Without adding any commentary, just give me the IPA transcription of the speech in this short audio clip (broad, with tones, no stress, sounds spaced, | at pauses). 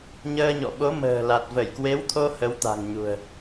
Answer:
ɲ əː˧ ɲ ɔ̰˧˨ ɓ o˨˦ m ə̤ː˨˩ l a˨˩ t̚ v ə˧˩ j k w e˨˦ w t̪ʰ o˧ h ə˨˦ w t̪ a̤˨˩ ŋ ɲ ṳ˨˩ ə̯